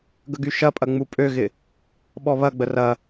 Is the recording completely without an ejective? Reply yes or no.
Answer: no